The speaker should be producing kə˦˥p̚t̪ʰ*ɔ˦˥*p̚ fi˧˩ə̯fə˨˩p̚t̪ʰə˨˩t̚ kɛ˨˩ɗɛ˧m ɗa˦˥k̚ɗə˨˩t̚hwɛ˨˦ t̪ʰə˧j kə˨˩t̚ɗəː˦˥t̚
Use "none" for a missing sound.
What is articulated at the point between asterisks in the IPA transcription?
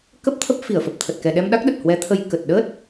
ə˦˥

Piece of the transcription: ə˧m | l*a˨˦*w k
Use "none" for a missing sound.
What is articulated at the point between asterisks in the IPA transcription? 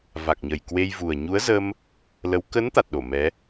ə˨˦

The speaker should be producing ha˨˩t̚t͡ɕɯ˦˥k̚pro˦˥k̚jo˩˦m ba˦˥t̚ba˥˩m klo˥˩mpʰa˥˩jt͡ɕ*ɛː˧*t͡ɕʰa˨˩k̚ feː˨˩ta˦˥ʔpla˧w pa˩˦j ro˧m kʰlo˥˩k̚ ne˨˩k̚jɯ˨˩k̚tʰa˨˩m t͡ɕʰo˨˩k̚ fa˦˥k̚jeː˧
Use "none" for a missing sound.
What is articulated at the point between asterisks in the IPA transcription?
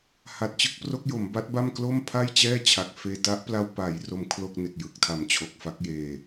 ɛː˥˩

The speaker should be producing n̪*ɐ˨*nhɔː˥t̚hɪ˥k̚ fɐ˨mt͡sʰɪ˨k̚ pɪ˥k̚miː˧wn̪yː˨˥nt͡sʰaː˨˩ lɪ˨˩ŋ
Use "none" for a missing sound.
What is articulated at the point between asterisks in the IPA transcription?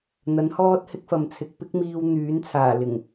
ɐ˨˥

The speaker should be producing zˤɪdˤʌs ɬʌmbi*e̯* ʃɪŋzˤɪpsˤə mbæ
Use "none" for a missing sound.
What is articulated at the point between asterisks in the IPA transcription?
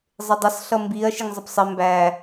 ɐ̯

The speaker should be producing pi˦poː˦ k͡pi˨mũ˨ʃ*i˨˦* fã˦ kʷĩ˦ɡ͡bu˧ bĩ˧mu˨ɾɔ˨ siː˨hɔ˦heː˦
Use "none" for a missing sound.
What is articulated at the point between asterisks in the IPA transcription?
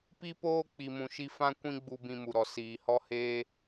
i˦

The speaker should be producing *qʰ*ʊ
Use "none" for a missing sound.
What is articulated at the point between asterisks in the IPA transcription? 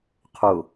qʰ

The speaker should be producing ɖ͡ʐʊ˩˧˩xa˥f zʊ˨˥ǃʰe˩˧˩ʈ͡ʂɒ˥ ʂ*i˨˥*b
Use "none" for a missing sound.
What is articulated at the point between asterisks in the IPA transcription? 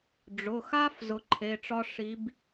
i˨˥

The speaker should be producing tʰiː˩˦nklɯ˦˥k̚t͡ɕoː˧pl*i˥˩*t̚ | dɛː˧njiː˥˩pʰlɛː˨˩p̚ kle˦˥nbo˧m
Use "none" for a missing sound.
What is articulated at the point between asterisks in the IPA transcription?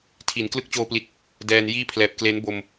i˨˩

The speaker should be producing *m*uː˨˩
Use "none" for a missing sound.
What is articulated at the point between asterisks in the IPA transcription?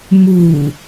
m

